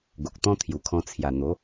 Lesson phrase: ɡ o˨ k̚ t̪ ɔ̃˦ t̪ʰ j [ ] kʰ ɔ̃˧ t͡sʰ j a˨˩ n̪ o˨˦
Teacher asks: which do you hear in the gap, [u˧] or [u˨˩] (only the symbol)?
u˨˩